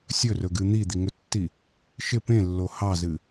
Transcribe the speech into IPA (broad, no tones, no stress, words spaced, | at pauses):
sʲɵrɵɡɨ n̪id̪iŋɵtːi | ʃɪ pẽlːo hɑzɨ